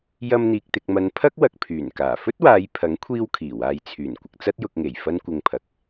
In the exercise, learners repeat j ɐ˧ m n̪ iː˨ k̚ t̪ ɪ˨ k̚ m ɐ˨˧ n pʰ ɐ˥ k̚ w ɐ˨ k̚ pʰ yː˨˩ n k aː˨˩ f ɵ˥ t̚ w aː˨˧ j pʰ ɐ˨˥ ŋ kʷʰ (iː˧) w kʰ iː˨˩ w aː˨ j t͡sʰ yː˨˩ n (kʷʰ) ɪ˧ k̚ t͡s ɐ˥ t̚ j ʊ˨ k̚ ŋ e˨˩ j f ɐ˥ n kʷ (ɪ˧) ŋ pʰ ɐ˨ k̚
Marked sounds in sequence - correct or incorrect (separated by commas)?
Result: correct, incorrect, correct